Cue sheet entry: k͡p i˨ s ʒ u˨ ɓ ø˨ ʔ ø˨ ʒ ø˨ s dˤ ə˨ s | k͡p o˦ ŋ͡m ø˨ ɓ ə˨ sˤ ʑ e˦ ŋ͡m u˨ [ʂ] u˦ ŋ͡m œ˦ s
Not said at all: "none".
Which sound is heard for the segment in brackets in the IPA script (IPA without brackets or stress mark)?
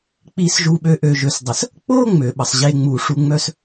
ʂ